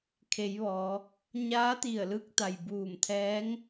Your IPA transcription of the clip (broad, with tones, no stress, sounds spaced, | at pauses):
kʰ e˩˧ j ʋ ɔː˩˧ | ɲ aː˧˥ t̪ i˧˩ ə̯ l ɯː˧ k̚ t̪ a˩ j b uː˧˩ m t̪ʰ ɛː˧˥ ŋ